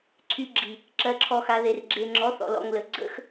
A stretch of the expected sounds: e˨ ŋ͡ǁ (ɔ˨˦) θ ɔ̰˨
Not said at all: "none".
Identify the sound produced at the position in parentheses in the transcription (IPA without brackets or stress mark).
ɔ˨˦